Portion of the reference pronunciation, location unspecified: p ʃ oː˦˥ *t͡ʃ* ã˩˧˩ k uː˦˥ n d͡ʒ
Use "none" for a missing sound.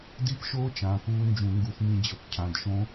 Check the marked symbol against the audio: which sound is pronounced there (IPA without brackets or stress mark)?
t͡ʃ